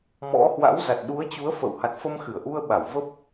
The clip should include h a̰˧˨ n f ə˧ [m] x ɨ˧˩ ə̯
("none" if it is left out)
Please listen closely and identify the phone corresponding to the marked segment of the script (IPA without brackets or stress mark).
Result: m